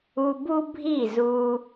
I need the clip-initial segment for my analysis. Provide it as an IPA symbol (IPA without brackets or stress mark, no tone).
u